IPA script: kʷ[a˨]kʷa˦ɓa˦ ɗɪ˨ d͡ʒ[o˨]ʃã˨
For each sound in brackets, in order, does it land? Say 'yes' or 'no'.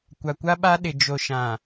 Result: yes, yes

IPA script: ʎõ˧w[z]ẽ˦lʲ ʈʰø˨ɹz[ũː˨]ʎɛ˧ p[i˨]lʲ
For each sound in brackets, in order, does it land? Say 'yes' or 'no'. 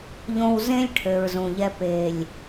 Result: yes, no, no

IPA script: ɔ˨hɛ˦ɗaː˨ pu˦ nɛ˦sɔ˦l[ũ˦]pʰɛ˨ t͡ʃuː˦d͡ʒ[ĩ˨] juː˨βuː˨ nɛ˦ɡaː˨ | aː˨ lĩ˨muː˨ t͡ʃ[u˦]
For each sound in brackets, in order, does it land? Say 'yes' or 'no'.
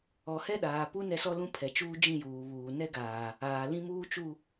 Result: yes, no, no

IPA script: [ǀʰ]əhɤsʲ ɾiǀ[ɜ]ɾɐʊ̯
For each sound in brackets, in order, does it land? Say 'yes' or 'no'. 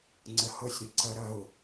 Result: no, yes

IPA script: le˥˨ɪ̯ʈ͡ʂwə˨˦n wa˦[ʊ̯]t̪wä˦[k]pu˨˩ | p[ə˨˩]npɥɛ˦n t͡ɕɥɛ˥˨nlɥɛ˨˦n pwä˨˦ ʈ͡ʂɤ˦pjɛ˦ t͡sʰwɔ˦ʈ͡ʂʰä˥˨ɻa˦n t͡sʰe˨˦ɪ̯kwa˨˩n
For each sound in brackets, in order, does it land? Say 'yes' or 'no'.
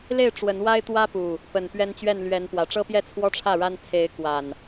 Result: no, no, yes

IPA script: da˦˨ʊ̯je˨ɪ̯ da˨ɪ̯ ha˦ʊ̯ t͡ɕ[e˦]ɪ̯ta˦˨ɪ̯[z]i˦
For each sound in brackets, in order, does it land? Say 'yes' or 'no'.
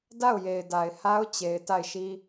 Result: no, no

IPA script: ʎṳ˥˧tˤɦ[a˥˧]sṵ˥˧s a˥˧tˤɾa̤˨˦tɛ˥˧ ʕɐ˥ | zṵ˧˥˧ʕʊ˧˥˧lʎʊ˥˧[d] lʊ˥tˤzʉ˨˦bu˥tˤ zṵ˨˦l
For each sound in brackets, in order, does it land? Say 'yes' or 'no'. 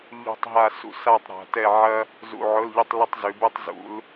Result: yes, no

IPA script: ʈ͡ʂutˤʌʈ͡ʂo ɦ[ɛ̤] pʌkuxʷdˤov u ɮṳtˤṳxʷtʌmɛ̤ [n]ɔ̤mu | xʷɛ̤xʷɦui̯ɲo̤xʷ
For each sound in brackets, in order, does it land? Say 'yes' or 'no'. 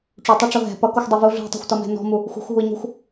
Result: yes, yes

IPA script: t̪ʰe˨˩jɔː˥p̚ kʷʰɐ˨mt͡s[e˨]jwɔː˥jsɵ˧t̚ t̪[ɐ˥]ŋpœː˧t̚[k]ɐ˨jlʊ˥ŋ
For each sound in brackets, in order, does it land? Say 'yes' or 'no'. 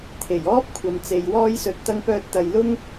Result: yes, no, no

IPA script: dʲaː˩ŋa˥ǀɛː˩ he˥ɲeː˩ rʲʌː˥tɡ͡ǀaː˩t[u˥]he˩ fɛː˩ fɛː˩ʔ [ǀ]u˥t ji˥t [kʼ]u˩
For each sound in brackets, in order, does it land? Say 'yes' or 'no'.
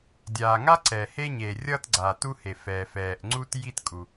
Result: yes, no, yes

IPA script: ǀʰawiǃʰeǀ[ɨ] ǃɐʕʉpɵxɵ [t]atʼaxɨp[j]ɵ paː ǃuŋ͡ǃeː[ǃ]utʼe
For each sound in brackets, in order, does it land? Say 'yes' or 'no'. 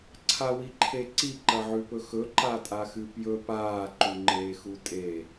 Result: no, no, yes, no

